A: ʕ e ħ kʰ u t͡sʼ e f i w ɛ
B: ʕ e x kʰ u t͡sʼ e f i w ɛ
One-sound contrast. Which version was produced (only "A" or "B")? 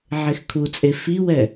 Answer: B